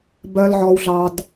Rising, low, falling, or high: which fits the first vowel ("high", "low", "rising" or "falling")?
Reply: low